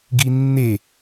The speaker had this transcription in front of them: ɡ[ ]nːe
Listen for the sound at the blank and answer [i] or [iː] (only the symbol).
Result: i